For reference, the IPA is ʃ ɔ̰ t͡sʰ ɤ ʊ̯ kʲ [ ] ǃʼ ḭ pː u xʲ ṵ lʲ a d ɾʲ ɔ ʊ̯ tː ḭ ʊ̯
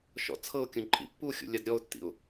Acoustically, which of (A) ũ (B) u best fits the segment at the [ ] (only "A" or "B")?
A